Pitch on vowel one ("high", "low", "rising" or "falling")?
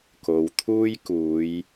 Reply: low